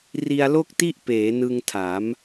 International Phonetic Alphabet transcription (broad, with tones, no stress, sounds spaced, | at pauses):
r i˧ a̯ l o˥˩ k̚ t i˥˩ ʔ p eː˩˦ n ɯ˧ ŋ tʰ a˩˦ m